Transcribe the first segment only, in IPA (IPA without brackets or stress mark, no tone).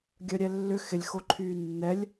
ɡʲ